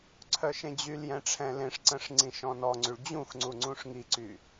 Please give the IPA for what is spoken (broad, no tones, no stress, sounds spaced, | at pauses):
ǀʰ œ ʃ ẽ d͡ʑ y l j ɛ̃ ʈ͡ʂʰ ɛ̃ l ẽ ʂ ǀ ə̃ ʂ ŋ͡ǀ ĩ ʃ ɔ̃ n ɔ ŋ͡ǀ y ɭ d͡ʑ ũ x ŋ͡ǀ u ŋ͡ǀ ũ ʂ ŋ i ǀ y